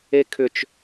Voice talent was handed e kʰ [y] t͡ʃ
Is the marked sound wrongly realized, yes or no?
yes